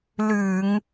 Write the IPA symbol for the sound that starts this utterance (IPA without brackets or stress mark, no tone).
l